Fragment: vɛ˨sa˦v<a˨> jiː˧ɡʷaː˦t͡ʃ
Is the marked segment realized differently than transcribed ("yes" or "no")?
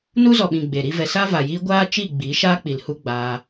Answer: no